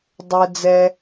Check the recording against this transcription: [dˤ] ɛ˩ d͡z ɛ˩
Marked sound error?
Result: no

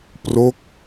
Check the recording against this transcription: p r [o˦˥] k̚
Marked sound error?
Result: no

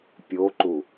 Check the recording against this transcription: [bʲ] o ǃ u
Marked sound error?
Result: yes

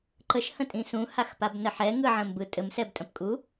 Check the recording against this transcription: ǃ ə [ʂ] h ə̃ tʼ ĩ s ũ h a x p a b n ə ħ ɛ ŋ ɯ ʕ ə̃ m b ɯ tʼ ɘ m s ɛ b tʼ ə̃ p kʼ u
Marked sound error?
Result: yes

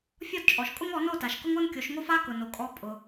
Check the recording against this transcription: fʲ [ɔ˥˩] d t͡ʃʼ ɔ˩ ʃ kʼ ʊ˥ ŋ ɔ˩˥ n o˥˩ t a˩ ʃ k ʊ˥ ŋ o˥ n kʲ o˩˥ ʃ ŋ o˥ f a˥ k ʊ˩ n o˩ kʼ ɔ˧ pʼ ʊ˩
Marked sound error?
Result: no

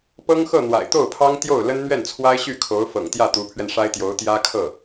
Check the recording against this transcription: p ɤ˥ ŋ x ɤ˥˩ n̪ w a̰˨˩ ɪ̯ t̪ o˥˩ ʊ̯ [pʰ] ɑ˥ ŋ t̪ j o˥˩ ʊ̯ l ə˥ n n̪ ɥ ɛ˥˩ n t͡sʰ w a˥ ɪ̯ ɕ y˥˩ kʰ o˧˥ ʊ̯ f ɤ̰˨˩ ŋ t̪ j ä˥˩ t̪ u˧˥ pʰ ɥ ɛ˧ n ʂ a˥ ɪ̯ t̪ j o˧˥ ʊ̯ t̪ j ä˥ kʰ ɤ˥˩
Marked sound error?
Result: no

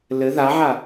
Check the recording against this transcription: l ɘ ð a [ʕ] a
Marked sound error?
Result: no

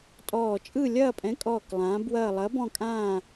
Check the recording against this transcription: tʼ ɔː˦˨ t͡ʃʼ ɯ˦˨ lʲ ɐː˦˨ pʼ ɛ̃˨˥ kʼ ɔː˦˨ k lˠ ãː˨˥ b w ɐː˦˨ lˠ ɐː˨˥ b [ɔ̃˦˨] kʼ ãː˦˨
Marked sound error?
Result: no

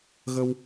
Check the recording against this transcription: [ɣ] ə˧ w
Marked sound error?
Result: no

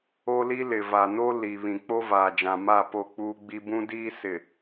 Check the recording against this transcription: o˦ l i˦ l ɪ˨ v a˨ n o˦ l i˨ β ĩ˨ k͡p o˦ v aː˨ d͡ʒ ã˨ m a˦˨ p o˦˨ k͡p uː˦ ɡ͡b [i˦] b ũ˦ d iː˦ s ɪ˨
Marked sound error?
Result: no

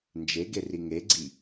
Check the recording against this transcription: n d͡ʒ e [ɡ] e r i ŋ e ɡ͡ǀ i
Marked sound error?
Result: no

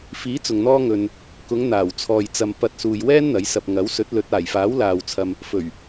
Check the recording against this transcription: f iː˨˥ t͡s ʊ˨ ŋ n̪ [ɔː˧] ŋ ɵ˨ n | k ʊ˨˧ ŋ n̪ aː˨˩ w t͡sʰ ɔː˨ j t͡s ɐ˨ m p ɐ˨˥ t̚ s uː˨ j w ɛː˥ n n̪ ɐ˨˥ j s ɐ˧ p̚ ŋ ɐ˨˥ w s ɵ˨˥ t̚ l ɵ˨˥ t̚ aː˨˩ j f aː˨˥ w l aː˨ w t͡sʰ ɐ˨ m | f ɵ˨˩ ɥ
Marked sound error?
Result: no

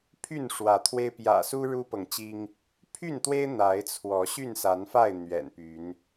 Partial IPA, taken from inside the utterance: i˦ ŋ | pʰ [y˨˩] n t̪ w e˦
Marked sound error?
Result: yes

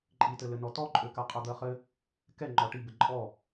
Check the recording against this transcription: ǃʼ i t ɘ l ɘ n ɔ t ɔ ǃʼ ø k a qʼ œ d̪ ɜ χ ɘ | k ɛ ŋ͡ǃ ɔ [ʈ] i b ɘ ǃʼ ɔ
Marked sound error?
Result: no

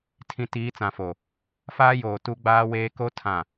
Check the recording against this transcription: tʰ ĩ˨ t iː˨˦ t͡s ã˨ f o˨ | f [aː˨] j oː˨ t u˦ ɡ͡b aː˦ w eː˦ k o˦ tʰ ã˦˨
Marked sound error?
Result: yes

